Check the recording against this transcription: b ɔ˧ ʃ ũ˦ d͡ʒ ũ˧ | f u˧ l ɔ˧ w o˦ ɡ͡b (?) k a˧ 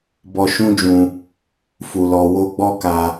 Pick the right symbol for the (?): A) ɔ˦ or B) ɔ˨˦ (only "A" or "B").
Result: A